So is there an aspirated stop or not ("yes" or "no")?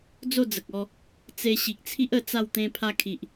yes